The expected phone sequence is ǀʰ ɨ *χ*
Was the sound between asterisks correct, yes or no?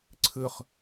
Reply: yes